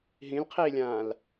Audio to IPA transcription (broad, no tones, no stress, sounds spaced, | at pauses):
ɦ ĩ l qʰ iː lʲ ãː l